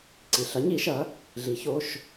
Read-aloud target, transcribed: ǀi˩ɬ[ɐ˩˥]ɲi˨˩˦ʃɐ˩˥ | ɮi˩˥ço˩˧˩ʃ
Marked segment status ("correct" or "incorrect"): correct